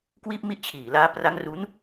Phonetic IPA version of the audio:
k w iː˥˩ p̚ m i˥˩ ʔ t͡ɕʰ iː˨˩ l aː˦˥ p r a˦˥ ŋ r u˦˥ n

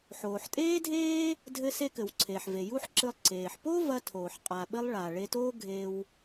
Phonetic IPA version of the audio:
ħ oː˩ ħ tʼ eː˥ dʱ eː˥ | dʱ ɘ˧ s e˧ k ɘ˩ w ǀʰ eː˩ ħ v e˩ j u˥ ħ ǁ ɨ˧ lˠ ǀ eː˩ ħ p o˥ v ɐ˧ tʰ oː˩ ħ qʼ a˩ ɓ ɘ˧ lˠ ɭ a˩ ɭ e˧ t oː˥ ɡʱ e˧ w

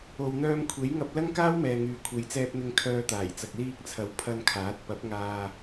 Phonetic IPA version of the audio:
o˨ w n̪ œː˧ m kʷʰ e˨˥ j ŋ ɐ˧ p̚ l ɐ˥ ŋ k aː˥ w m ɛː˨ ŋ yː˨ kʷʰ e˨˧ j t͡s ɛː˧ p̚ n̪ ɪ˧ ŋ kʰ œː˧ t̪ aː˨˩ j t͡s ɐ˨ k̚ l iː˧ k̚ t͡sʰ ɐ˨˥ w pʰ ɐ˧ n kʰ aː˨˥ t̚ p ɐ˨˥ p̚ ŋ aː˧

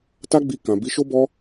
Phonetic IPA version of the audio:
t a˦ ɡ͡b i˧ k ã˨ b i˨˦ ʃ o˦ b ɔ˦

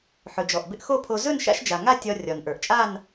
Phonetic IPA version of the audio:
ħ ɵ˩ d͡ʒ ɔ˩ ʔ b ɪ˧ ʔ x o˥˧ pʰ o˧ z ɵ˥˧ n ʃ a̰˧ ʃ d͡ʒ a˩ ŋ a˥˧ tʲ ɒ˧ rʲ ɒ˩ n ʔ ə˞˩ ʔ t͡ʃʼ a˥˧ n

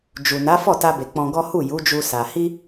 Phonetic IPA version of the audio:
d͡ʒ u˨ n a˨˦ f ɔ˦˨ t a˧ b e˨ k͡p ɔ̃˧ ɡ ɔ˦ h u˦˨ j u˨˦ d͡ʒ u˧ s a˧ h i˦

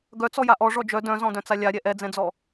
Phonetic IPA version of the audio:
ɡ œ t͡s ɔ j a ʔ ɔ ʐ ɔ d͡ʒ œ d œ̃ z ɔ̃ d œ̃ t͡s a lʲ a ɾʲ ɛ ʔ ɛ d͡z ɛ̃ d͡z ɔ

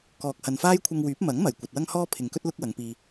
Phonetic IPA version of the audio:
k ɔː˨ k̚ h ɐ˨ n f aː˥ j kʷʰ ɐ˧ ŋ w yː˨˥ p̚ m ɐ˨˥ ŋ m ɐ˨˩ j kʷ ɐ˨ t̚ w ɐ˥ ŋ h ɔː˥ pʰ ɪ˨ ŋ k ɵ˥ t̚ l ʊ˥ k̚ w ɐ˨˧ ŋ p iː˧

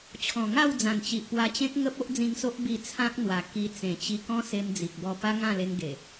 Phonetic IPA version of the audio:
t͡ɕʰ ɔ̃˨˩ ŋ a˥˧ w d͡z ã˨˩ n t͡ɕ i˨ ʔ p w a˧ t͡ɕ ẽ˦ k̚ ŋ ə˦ p̚ o˦ ʔ d͡z ĩ˧ ŋ s o˦ ʔ b i˧ t͡sʰ ã˦ k̚ n̪ w a˨˩ k i˧ t͡s ẽ˨˩ t͡ɕ i˧ k ɔ̃˦ s e˧ m d͡z i˨ k̚ b ɔ˧ p a˦ ŋ ã˥˧ l e˧ ŋ ɡ e˨˩

